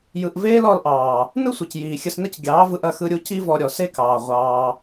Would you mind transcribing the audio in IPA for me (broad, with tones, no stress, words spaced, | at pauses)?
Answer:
jɯ˨ʔveː˦l ɔ˧lʔɑː˨ | nɯ˦sʷɯ˨c jiː˨ xʲə˧snə˦c ɡʲɑː˨˦vɯ˧ʔɐ˧ xɯ˧ɾʲu˧ ci˦vɔ˧ɾʲɔ˨ se˦kɑː˨ ʁʷɑː˧